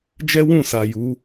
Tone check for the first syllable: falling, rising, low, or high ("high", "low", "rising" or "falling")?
high